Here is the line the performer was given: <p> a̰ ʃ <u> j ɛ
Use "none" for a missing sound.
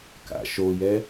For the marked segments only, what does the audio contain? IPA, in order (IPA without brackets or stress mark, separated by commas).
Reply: k, o